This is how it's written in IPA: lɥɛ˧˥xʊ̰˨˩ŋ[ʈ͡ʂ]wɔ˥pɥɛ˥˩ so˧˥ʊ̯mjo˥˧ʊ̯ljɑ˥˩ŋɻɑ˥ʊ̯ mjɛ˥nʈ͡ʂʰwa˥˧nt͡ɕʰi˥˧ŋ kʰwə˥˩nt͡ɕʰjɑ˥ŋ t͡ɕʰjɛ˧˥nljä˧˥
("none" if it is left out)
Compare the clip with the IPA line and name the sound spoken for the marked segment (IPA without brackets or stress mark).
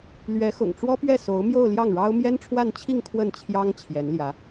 ʈ͡ʂ